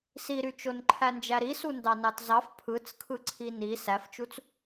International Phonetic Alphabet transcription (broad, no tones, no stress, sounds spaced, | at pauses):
s i ɾ y t͡ʃ o n ǃʰ æ n d͡ʒ æ ɾ i s u n d ɑ n ɑ t z ɑ f pʰ ɯ t͡s kʰ ɯ ǀʰ i n i s æ f t͡ʃ u t͡s